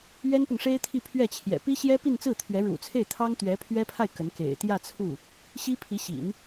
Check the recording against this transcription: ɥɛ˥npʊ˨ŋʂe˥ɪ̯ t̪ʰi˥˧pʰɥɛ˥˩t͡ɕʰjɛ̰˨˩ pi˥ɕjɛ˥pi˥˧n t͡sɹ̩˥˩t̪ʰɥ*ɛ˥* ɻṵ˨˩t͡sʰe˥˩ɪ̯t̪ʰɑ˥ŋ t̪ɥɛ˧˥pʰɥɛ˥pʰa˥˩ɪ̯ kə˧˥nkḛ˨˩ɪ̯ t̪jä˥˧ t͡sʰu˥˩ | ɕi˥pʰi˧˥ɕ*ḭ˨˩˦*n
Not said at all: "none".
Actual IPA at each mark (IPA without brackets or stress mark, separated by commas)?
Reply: ɛ˧˥, ḭ˨˩˦